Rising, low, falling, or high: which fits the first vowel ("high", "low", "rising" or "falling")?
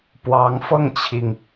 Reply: rising